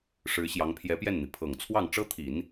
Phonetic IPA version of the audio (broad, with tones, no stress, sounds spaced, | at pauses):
ʂ ɻ̩˧˥ ɕ j ɑ˧˥ ŋ pʰ j ɛ˧˥ p j ɛ˥˩ n n̪ i˩ pʰ ɤ˨˩ ŋ t͡sʰ w ɑ˥˩ ŋ ʈ͡ʂ ɤ˥ t̪ʰ i˨˩˦ n